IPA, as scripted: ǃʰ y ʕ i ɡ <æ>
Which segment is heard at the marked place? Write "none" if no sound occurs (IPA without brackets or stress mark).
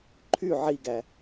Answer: æ